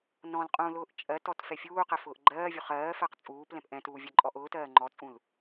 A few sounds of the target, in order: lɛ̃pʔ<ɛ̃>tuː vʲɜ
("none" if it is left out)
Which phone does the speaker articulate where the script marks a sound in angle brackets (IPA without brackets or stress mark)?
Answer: ɛ̃